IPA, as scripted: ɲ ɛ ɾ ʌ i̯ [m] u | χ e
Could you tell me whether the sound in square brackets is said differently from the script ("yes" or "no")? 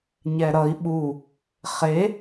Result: yes